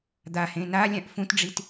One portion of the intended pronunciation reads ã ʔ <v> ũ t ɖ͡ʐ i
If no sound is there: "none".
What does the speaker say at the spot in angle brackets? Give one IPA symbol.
f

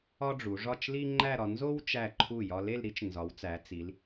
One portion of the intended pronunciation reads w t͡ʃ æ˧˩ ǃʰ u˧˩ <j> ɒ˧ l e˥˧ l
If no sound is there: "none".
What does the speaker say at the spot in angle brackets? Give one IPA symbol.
j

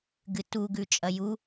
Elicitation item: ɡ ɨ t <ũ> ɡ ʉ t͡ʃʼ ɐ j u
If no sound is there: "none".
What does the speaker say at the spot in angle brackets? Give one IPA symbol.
u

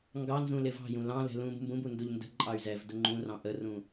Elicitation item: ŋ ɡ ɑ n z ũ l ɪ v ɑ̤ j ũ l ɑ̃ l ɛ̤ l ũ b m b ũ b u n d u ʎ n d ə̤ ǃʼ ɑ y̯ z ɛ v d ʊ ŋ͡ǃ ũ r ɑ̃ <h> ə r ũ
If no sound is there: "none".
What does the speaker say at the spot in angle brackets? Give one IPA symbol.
ʔ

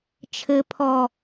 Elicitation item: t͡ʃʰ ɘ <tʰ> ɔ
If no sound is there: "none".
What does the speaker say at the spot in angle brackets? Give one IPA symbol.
pʰ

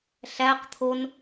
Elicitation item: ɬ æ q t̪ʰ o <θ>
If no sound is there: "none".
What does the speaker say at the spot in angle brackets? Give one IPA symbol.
n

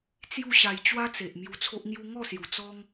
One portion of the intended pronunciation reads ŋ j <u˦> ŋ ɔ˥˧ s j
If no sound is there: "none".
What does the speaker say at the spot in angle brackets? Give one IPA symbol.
u˦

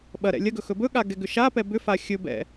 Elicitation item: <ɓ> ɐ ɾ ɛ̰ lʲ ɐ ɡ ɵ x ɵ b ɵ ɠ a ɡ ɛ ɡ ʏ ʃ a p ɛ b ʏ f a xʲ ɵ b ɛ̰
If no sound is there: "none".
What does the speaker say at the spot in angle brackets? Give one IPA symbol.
ɓ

